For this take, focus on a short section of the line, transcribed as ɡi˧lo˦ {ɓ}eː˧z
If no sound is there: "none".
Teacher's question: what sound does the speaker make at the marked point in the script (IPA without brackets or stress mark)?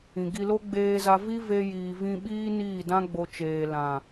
ɡ͡b